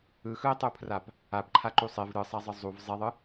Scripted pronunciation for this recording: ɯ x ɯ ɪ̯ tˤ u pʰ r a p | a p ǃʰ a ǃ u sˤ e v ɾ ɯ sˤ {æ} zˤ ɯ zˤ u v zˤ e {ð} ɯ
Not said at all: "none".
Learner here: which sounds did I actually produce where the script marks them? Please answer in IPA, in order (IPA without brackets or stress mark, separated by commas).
a, ðˤ